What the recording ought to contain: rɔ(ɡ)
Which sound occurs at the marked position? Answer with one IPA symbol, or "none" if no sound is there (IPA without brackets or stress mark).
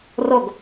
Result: ɡ